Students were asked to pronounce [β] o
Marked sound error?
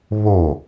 no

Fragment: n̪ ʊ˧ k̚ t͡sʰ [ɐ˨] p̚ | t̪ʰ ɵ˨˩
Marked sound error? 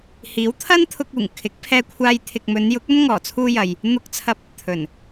yes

